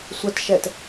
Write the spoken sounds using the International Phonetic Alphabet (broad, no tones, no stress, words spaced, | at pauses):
sʷətʃɛt